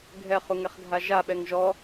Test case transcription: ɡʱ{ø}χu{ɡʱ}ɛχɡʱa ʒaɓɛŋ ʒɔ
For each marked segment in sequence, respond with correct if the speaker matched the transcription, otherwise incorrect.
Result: incorrect, incorrect

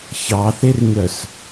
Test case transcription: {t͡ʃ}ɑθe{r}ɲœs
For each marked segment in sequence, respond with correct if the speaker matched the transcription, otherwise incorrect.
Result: incorrect, correct

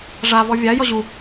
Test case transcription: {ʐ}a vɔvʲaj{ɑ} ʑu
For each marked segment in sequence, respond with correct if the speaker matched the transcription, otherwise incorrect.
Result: correct, incorrect

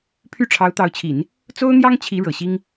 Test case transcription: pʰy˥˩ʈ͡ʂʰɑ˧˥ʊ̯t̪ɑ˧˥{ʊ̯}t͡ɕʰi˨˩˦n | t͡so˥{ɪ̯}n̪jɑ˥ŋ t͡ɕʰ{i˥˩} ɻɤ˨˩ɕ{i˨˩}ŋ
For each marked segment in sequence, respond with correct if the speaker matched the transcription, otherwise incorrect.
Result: correct, incorrect, incorrect, incorrect

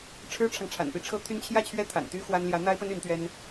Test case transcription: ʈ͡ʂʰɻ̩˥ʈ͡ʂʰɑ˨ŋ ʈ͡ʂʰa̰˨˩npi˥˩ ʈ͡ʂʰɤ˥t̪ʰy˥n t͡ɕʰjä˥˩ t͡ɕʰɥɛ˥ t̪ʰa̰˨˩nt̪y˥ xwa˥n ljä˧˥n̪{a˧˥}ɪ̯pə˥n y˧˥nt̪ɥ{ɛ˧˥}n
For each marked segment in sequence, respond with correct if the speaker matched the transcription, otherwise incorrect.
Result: incorrect, incorrect

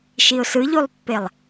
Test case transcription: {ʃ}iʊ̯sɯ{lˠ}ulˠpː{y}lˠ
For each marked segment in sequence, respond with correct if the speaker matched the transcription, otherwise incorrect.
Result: correct, incorrect, incorrect

